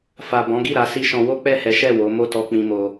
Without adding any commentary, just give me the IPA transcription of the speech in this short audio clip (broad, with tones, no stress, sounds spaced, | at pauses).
f a˨ b ɔ̃˨˦ ɡ i˦˨ ɾ a˨˦ s i˦ ʃ ɔ̃˧ w o˦ k͡p ɛ˦˨ h ɛ˨˦ ʃ ɛ˦˨ w o˨˦ m o˦˨ t ɔ˧ k͡p ĩ˧ m o˧